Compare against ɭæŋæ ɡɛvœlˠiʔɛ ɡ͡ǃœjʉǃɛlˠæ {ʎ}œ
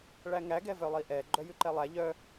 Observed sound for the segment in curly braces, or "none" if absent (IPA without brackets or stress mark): ʎ